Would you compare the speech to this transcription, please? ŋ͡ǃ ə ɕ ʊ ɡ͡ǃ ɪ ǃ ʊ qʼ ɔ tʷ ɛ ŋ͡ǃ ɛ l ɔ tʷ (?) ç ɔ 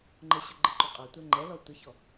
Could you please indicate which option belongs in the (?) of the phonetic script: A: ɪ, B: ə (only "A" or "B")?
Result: B